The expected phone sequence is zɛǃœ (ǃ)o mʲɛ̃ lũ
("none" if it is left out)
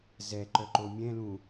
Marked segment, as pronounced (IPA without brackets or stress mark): ǃ